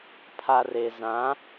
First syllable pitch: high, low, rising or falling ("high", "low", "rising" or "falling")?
low